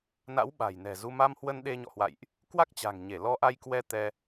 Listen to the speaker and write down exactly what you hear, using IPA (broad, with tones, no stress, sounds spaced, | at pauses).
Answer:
n a̰˧˥ w ɓ a̤˨˩ j n ɛ̤˨˩ z u˧ m a˧ m h w ə˧ n ɗ e˧ ɲ ɔ̰˧˨ h w a̰˧˨ j ʔ | k w a˦˥ k̚ t͡ɕ a̤˨˩ ŋ ɲ e˧˩ l ɔ˧ ʔ a˧ j k w ɛ˧ t̪ ɛ˧